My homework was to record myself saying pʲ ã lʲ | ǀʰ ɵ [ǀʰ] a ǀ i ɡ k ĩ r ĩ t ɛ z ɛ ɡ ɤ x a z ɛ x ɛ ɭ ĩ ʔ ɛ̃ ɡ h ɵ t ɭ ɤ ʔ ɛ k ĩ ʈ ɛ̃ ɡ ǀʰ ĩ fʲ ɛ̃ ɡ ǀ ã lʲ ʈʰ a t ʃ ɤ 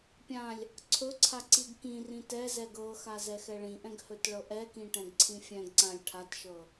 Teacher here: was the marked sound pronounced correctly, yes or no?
yes